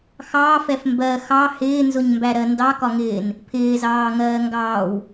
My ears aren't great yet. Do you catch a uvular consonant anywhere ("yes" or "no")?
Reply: no